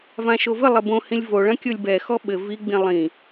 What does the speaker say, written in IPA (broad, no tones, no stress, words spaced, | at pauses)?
vãʃovɘlˠɘ bõhĩlʲ voɭɐ̃ kʲolʲbɛxɔ ɓɘ viɡ͡bĩ lˠĩ